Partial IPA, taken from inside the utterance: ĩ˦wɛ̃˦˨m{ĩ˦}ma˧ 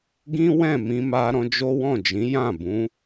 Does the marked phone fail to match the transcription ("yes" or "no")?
yes